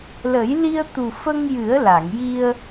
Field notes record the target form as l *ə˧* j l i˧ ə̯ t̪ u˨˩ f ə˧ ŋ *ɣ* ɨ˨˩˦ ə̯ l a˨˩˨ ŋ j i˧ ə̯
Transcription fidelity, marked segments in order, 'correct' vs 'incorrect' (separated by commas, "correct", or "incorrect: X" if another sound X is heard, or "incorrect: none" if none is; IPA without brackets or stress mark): incorrect: ə˨˩˦, incorrect: j